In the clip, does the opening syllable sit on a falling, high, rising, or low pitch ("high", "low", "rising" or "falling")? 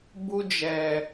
high